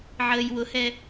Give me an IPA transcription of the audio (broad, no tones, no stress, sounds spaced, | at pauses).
ʕ əː j w ʊ h ɛ